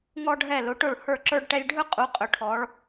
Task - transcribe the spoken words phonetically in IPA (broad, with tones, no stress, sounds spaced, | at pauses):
ŋ ɔ˧ ɖʱ ɛ˧˩ l ʊ˩˧ ʈ ʊ˧˩ ɭ h ə˞˧˩ ǁ ə˞˧ ɖ ʈ ɛ˧ lʲ ɖʱ ɵ˥ qʼ u˩˧ qʼ ɵ˩˧ ʈʰ ɔ˩˧ ɭ